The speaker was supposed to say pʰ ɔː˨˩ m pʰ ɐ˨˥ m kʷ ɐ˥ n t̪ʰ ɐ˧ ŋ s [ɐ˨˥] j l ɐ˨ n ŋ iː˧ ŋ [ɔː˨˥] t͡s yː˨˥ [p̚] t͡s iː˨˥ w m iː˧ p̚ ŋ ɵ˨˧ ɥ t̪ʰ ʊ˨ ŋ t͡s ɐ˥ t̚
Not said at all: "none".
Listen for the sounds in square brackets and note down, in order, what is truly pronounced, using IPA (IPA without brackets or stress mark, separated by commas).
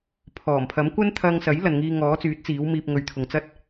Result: ɐ˨˥, ɔː˨˥, t̚